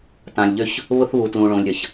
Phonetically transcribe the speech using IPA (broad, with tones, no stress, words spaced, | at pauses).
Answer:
tã˨lʲʎø˥ç | βʊ˥θβu˨ tlũ˨ɭõ˨lʲɾʲɐ˩ç